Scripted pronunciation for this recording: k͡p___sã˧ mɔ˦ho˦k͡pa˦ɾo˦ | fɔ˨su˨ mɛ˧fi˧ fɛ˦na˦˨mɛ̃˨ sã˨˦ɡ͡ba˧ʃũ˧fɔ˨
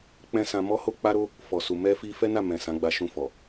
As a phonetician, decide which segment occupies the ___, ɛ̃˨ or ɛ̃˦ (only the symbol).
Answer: ɛ̃˦